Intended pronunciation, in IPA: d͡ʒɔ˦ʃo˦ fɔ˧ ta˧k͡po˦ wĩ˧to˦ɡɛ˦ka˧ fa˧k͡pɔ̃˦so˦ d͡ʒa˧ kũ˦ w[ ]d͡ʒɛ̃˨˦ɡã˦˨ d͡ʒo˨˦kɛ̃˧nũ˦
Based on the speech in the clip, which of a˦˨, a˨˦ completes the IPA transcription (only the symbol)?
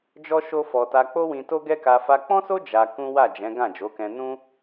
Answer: a˦˨